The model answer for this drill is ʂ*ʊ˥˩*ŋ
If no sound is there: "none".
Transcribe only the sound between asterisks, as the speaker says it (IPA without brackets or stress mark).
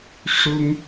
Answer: ʊ˥